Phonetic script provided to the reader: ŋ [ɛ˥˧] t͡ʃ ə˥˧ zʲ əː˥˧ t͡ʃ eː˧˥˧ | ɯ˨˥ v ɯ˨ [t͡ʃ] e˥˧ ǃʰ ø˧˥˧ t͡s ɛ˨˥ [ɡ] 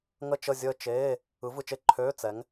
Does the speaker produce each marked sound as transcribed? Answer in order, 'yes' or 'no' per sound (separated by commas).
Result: no, yes, no